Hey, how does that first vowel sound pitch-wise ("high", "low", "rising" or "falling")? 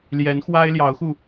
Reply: rising